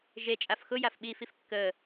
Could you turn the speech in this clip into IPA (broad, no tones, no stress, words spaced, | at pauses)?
ʒet͡ʃʼaf xʊ jafɓifif kːə